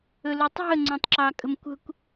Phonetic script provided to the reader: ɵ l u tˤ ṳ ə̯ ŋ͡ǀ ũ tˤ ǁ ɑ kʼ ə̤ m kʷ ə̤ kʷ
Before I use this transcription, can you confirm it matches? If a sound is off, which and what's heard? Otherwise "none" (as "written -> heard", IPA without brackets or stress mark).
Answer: none